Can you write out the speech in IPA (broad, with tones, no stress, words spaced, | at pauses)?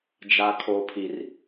d͡ʒa˦kʰo˦pʰi˦r